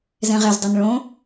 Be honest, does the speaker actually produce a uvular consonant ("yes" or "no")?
yes